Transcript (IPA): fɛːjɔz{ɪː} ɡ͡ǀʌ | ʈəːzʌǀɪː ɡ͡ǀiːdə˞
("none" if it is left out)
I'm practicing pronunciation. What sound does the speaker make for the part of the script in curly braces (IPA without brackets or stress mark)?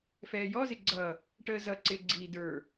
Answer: ɪ